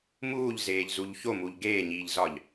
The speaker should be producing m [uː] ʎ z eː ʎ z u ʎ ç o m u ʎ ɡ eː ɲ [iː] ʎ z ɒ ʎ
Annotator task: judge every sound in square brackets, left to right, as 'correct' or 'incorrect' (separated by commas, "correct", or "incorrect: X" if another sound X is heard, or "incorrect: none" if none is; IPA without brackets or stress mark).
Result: correct, correct